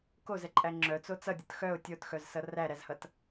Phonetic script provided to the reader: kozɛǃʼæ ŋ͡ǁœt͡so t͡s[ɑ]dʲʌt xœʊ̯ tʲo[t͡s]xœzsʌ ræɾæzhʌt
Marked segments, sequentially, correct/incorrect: incorrect, incorrect

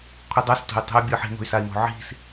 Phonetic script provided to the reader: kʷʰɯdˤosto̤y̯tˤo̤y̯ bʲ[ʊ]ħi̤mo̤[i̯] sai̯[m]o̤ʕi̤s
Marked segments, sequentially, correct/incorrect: incorrect, incorrect, correct

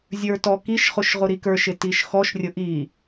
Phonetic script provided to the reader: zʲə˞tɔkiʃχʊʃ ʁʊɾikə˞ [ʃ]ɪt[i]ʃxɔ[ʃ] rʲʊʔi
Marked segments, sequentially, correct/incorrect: correct, correct, correct

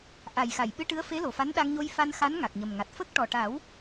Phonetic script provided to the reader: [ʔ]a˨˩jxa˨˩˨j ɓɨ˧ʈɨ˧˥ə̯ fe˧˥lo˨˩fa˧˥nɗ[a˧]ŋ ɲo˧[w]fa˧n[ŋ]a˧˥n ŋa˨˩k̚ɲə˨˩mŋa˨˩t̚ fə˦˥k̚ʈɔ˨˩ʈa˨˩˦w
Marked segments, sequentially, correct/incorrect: correct, correct, incorrect, incorrect

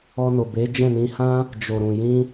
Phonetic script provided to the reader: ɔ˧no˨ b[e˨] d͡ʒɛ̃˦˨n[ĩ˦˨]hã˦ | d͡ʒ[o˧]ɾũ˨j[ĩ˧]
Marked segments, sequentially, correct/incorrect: incorrect, incorrect, incorrect, correct

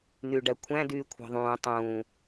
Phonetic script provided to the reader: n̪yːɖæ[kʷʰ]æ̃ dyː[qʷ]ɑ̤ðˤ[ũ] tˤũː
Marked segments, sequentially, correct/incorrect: correct, incorrect, incorrect

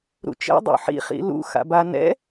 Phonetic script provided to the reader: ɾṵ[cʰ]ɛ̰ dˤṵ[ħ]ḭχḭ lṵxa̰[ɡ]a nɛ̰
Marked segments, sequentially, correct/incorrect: incorrect, correct, incorrect

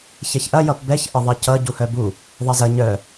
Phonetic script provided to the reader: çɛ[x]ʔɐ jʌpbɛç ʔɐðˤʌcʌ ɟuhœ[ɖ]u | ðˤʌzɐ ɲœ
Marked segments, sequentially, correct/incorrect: incorrect, incorrect

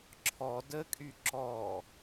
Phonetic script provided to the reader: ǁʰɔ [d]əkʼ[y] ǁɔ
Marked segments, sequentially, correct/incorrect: correct, correct

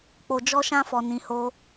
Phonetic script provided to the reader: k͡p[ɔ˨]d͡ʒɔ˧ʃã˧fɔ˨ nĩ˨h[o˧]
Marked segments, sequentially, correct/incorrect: incorrect, correct

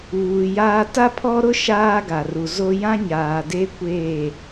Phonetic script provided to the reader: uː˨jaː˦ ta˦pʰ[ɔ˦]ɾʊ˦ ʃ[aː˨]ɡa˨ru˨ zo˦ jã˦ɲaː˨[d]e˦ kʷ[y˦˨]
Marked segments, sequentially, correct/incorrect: correct, incorrect, correct, incorrect

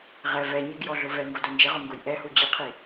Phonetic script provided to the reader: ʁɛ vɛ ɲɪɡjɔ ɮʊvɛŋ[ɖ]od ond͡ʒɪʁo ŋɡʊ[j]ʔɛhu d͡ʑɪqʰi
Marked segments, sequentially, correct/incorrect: incorrect, correct

